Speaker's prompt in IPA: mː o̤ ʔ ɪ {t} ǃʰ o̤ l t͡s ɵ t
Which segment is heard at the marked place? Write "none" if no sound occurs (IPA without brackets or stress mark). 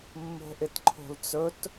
t